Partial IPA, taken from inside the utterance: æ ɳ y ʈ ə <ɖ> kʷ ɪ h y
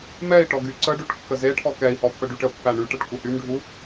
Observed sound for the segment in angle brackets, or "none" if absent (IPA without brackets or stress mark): ʈ